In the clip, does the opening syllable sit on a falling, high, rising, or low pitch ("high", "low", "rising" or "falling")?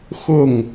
falling